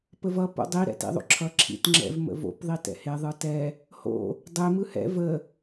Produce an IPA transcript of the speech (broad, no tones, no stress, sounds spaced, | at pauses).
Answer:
p ə v ʌ p o̰ dˤ i ɾ ɛ̰ t ḭ ðˤ o̰ ǁʰ ʌ ǁʰ ḭ t ŋ͡ǁ ɛ̰ v m ə̰ v o̰ p ðˤ i t ɛ̰ h e ðˤ ɯ t ɛ | h o̰ | dˤ e m ɯ h ɛ̰ v ə